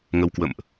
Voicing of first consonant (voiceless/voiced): voiced